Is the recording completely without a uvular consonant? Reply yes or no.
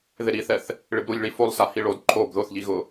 yes